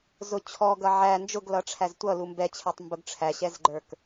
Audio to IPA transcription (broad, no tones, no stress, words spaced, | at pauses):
zʊ t͡ɕʰɔ ɡʌʕæ nd͡ʒʊɡlʌʈ͡ʂʰæz tʷʌ lumbɛt͡ɕʰɛtˤ mbʊɡʈ͡ʂʰæɕɛzɡ͡ǃə˞k